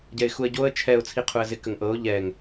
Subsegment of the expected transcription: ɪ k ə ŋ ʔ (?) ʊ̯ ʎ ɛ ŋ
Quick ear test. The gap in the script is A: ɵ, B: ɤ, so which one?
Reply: B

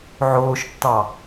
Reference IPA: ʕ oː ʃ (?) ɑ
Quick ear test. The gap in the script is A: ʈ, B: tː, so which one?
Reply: B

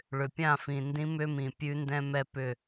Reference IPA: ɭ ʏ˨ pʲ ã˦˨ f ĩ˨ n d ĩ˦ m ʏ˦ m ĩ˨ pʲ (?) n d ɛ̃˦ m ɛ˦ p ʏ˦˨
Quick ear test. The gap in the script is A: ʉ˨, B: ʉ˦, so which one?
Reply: B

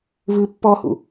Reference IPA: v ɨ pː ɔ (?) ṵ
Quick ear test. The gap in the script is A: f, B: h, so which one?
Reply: B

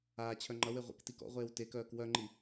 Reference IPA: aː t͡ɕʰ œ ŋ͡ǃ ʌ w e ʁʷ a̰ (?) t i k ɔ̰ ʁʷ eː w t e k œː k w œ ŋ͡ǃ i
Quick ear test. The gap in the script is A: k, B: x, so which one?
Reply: A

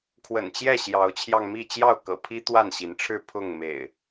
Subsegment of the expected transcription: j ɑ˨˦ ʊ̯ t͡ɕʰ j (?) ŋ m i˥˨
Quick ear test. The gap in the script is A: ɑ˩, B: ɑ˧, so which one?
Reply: B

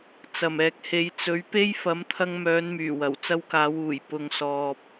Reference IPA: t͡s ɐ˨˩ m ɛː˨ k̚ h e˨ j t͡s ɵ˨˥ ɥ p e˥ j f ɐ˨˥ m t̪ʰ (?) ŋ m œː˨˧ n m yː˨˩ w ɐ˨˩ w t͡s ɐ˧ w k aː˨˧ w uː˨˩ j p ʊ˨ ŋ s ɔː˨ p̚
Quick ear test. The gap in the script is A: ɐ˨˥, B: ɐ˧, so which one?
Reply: B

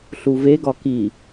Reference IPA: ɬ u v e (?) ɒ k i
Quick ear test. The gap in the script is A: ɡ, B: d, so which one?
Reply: A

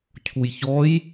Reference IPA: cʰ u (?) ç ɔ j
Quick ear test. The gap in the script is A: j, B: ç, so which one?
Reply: A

